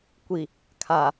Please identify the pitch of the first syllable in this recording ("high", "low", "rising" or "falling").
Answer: low